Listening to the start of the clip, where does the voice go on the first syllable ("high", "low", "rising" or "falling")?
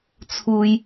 low